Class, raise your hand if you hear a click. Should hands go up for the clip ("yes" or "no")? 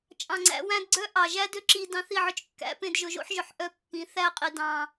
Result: yes